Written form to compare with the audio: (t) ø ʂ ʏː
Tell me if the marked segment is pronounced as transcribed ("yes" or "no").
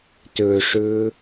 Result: yes